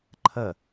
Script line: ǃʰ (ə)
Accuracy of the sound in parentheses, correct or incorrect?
correct